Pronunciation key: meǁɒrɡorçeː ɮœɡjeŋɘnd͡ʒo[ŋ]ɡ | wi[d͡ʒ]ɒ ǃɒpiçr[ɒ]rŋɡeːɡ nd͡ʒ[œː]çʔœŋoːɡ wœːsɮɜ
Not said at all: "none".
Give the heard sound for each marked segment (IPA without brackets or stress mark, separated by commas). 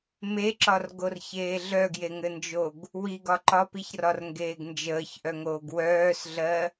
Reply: none, ɡ, ɒ, əː